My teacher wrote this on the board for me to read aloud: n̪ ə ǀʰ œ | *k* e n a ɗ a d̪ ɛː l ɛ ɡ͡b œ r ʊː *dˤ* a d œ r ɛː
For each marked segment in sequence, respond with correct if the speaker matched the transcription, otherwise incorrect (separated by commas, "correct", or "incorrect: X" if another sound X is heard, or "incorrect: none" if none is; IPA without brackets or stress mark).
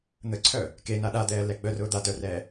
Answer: correct, incorrect: d̪